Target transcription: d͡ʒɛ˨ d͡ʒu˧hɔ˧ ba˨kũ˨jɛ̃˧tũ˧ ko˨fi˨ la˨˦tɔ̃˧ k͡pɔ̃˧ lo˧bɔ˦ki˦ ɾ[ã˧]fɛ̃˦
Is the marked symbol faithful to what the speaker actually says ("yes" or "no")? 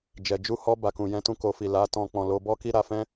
no